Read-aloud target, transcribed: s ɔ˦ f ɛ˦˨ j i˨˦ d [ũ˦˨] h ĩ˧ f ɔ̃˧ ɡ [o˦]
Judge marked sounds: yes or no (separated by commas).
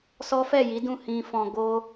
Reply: yes, yes